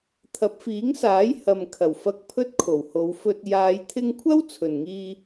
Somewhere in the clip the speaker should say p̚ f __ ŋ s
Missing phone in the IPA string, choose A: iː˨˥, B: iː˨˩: A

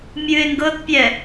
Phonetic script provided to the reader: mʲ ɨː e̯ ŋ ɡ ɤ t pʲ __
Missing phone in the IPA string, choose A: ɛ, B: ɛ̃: A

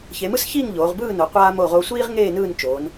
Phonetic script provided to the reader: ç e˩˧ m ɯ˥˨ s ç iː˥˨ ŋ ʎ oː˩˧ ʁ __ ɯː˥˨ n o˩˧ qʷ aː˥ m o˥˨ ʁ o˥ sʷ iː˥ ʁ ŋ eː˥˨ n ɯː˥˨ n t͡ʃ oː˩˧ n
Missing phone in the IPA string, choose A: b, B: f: A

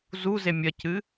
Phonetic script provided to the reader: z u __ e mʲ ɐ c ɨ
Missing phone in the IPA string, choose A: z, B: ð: A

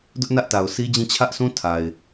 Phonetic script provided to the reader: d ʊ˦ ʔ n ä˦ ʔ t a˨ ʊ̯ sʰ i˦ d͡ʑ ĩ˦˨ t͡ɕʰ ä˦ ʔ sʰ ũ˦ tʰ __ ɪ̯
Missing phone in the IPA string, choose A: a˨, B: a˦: A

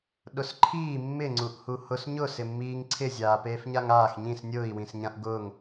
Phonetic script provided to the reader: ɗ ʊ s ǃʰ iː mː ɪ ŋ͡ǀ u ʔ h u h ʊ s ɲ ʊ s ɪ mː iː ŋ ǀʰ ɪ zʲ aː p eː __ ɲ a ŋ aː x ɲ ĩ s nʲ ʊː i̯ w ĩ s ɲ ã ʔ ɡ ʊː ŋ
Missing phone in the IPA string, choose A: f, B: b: A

